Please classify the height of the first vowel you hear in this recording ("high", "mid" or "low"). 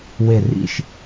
mid